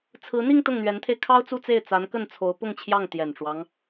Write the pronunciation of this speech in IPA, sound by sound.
t͡sʰɹ̩˧˥n̪i˥˧ŋ t̪ʊ˥˩ŋn̪ɥɛ˧˥nt̪ʰe˧ɪ̯ kʰɑ˥ʊ̯t͡su˥˧t͡se˥˩ɪ̯ t͡sa˧˥nkə˥˩nt͡sʰo˧˥ʊ̯ pʊ˥˧ŋt͡ɕʰjɑ˥˩ŋ t̪jɛ˨˩nʈ͡ʂwɑ˦ŋ

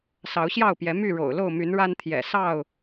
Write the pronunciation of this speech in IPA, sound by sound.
sɑ˨˦ʊ̯ɕjɑ˥˨ʊ̯pjɛ˨˦ my˥˨ɻo̰˨˩ʊ̯lo˥˨ʊ̯ my˨˦nɻa˦nt̪ʰjɛ̰˨˩ sɑ˥˨ʊ̯

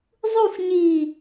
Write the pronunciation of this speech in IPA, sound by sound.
zˤuf ɲi

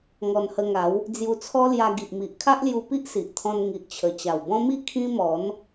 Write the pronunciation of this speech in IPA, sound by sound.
ŋɔ˧nhə˧ŋa˨˦w | d͡zju˧t͡sʰɔ˦lja˧ ɡi˨ʔmi˨ʔ kʰa˦ʔlju˧ pi˦ʔsi˨ʔt̪ʰɔ̃˧n ŋi˨ʔt͡ɕʰə˨˩ t͡ɕa˨˩wbɔ̃˦mi˥˧ kʰĩ˦mɔ˨˦n

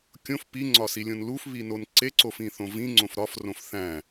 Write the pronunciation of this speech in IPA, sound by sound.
kʲõf piŋ͡ǀɒsilʲõn lufβinon ǀeǀofĩθõ vĩŋ͡ǀõf ɾɒfrõf θæ̃

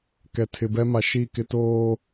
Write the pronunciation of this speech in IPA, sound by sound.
kɛ˨tʰɪ˨bɛ˦ ma˨ʃi˦˨kɪ˦ toː˦

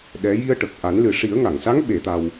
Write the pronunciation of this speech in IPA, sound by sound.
ɗɛ˧˥ ji˧ə̯ʈə˨˩k̚ʔa˨˩˦nlɨ˨˩ ʂi˨˩˦ə̯ŋa˨˩˨ŋsa˧˥ŋ ɓe˨˩˦t̪a˧w

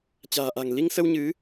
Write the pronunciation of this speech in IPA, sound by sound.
t͡ɕa̤ː˨˩ʔa̤˨˩ŋ li˧ŋsə˧w ɲɨ˨˦

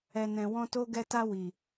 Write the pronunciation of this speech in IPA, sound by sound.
ɛ˨nɛ̃˨ wɔ̃˧to˧ɡɛ˧ta˧ wi˨

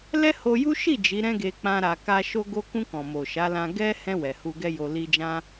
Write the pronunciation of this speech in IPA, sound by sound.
lɛ˦ho˧ju˦ ʃi˦˨ d͡ʒi˨˦ɾɛ̃˦ɡe˧ k͡pã˦ɾa˧ ka˧ ʃo˧ɡo˧kũ˧ kɔ̃˨mo˨ ʃa˨˦lã˧ ɡɛ˦ hɛ̃˧ wɛ˨hu˧ɡɛ˦jo˧ li˧d͡ʒã˦

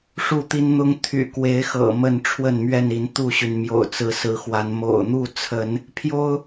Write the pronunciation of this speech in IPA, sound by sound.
ʂu˥˨t̪i˦nn̪ʊ˦ŋ t̪ʰy̰˨˩kwe˨˦ɪ̯xɤ̰˨˩ mə˥˨nʈ͡ʂʰwə˥˨nmɥɛ˥˨ni˨˦n t̪u˥˨ɕy˩nmjo̰˨˩ʊ̯ t͡sɹ̩˨˦ sɹ̩˨˦xwa˨˦n mo̰˨˩ʊ̯n̪u˥˨t͡sʰə˨˦n | pʰjo˦ʊ̯

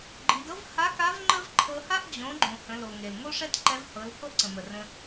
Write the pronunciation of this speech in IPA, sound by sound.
ɡ͡ǃi˩˧dɤ˥v ha˧˥ka˧˥v ŋ͡ǃə˥v ǃʰɤ˧ha˥ʔ d͡ʑõ˩˧ɡ͡ǃõ˩ hə̃˩˧lo˩ ŋe˩lŋo˥ʂɛ˥tǃɛ˧˥v hɤ˩˧l ho˥ʔǀə̃˩mə˩ rə̃˧

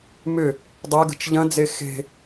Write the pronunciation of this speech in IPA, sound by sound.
mʏ | dˤɛɡə̤t͡ʃ ʎɐ̃d͡ze xe̤

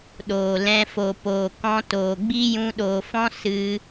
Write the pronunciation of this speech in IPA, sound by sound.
ɗoː˨lɛ̃˧ fo˨poː˨ kɔ̃˧toː˨ɡ͡bi˦ jũ˧ɗoː˨fɔ̃˦ sɨ˧

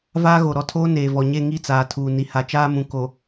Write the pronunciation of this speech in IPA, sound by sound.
vaː˦ɣo˨ɾɔ˦tʰoː˦ neː˨vɔ˨ɲe˦˨ ŋi˦˨t͡saː˨ tʰuː˨ni˨ ha˨t͡ʃaː˦mũ˨ ko˨

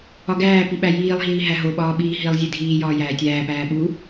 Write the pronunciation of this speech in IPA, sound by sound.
ɒɡæːpi ɓæjiːlˠɦiː ɦæɦoɓɒːɓiː ɦilˠ zʲedʱiː jɒːjæːtʲæːpæː ɓu

